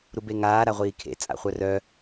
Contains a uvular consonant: yes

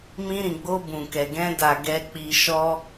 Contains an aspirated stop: no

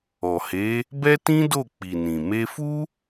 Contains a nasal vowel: yes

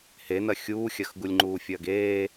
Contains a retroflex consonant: no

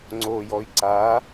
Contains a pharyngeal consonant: no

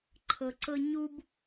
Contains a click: yes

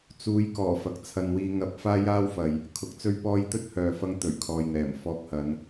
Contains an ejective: no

